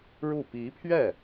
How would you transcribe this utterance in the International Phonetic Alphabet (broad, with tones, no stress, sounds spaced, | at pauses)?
ɻ u˥˩ p i˧˥ pʰ ɥ ɛ˥˩